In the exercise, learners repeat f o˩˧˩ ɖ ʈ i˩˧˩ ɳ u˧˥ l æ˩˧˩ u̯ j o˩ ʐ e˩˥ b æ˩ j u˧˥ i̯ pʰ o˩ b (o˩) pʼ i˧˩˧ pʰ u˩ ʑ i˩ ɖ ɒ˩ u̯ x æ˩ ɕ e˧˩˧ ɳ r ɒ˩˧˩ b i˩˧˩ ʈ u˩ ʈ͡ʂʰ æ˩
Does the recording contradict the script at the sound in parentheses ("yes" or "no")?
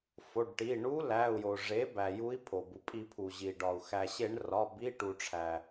yes